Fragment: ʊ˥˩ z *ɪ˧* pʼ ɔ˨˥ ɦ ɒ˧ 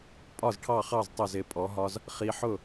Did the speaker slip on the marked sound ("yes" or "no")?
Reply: no